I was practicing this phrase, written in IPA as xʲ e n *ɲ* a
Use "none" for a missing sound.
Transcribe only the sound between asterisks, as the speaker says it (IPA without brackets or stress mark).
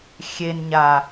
ɲ